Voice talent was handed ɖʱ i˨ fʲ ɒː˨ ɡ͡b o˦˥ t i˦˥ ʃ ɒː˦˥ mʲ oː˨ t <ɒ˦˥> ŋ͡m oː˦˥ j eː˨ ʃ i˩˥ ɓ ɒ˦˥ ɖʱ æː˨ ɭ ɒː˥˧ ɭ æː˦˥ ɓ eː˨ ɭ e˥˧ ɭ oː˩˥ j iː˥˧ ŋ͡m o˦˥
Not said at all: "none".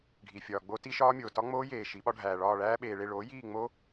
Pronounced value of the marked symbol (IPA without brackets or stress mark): ɒ˦˥